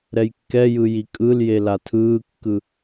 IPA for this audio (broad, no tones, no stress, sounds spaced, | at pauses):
ɾ ɛ j kː ɛ j ɯ j i kʼ ɯ l j e l a tʰ ɯː kː ɯ